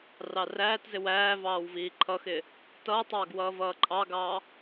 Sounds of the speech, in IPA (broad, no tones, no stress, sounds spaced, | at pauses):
r ɑ r æː t z ɪ w æː v ɑː w v iː ǃʰ ʌ x ɪ | t ʌː tˤ ɑː ɡ w ʌː v ʌː ǃʼ ɑ ɡ ɑː